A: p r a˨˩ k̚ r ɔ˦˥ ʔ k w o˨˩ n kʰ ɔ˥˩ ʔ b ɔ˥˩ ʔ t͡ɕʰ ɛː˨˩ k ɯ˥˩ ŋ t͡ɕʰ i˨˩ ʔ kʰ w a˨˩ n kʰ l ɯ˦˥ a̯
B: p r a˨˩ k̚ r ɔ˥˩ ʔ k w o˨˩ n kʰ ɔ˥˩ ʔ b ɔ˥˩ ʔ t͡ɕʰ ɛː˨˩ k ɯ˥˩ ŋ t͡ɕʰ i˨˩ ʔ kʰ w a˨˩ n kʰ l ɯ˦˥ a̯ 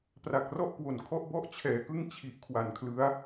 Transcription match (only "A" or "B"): B